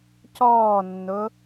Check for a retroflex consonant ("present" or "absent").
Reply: absent